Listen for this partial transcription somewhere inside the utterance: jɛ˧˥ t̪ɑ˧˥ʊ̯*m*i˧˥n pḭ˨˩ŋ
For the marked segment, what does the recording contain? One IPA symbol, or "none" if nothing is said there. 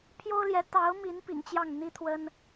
m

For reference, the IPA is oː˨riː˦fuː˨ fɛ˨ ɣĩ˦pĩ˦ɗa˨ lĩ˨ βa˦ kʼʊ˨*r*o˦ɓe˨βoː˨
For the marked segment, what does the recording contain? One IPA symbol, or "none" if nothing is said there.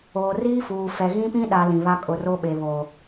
r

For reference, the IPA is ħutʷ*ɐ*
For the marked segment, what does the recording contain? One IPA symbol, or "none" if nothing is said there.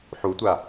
a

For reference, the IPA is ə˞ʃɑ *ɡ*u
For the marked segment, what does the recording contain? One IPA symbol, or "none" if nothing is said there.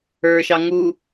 ŋ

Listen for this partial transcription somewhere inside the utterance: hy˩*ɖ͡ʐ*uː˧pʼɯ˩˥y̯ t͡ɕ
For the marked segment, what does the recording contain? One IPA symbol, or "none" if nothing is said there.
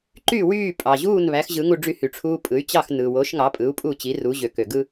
ʈ͡ʂʰ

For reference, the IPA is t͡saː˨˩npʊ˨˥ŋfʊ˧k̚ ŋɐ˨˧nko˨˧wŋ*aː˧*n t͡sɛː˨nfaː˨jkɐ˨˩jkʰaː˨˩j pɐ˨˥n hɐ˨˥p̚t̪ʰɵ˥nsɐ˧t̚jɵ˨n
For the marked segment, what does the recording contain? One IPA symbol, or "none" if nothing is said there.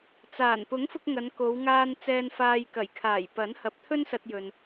aː˧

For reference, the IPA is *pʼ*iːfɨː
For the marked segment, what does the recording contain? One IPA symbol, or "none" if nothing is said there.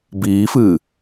b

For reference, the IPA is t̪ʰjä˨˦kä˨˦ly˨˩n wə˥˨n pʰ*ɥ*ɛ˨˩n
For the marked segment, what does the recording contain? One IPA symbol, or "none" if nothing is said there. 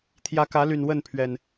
ɥ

